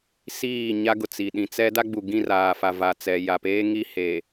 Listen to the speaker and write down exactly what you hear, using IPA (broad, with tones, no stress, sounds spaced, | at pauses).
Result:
s iː˦˨ ɲ a˦ ɡ ʊ˨ t͡s i˨ ɗ ĩ˨ t͡s ɛ˦ d a˦ ɡ͡b u˨ ɡ ĩ˦˨ r aː˨ f a˨ v a˨ t͡s ɛ˨ j a˨ p eː˦ ŋ i˦ h eː˨